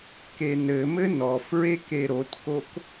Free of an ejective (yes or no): yes